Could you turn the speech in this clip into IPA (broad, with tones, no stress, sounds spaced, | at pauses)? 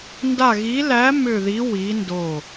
n d a˦˨ ɣ i˧˥ l æ˧˥ m ʏ˦˨ ð i˧˥ w i˧˥ n d o˦˨